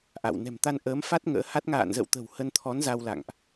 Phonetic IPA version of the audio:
ʔa̰˧˨w nɛ̤˨˩mt̪a˧n ʔəː˨˦mfa˦˥t̚ ŋə̰ː˧˥ha˦˥t̚ ŋa̰ː˧˨nzə̰˧˨wt̪ə̤˨˩w hə˧nt̪ʰɔ˨˦n za˧wla̰˧˨ŋʔ

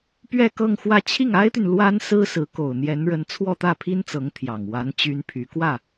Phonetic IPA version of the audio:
pɥɛ˥˧ kɤ˥˧ŋxwä˥˧ t͡ɕʰi˥˩ŋa˥ɪ̯t̪y˨n lwa˥nsɹ̩˥sɹ̩˧˥ko˨˩ʊ̯ n̪jɛ˧˥nɻə˧˥n t͡sʰwɔ˥˧t̪ä˥˩pʰi˥nt͡sɤ˧˥ŋ t̪ʰjɑ˨˩ŋ wa˧˥n t͡ɕy˥npʰy˧˥ kwä˥˩

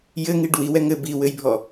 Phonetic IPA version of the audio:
jɘŋiɖ wiwɛ ŋɘ biwɘjbʱɔ

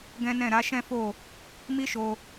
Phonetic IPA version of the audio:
ɡɛ̃˦nɛ̃˦˨ ɾa˨˦ʃɛ̃˦fo˦˨ | mi˦ʃo˧

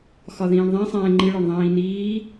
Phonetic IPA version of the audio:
xɒðĩːɳðˤẽsˤɛ̃ː ŋ͡ǃiɭɒɳ ðˤĩːniː

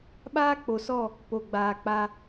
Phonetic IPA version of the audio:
ɓaː˦ k͡po˨sɔ˦˨ | po˨ɡ͡baː˨k͡pa˧

